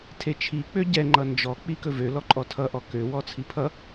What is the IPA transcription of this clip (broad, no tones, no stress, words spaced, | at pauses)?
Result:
tʰet͡ʃʰi k͡pøɟɛ ŋ͡ǃʌnd͡ʒɔ k͡pikɵvø lɔǃʼɔtʰʌ ʔɔkø wɔt͡sʰipʰʌ